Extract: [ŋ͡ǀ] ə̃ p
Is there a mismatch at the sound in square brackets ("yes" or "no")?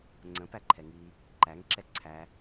no